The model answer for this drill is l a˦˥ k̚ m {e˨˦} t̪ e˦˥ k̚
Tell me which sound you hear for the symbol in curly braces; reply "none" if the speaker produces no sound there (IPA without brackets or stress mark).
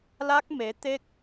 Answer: e˨˦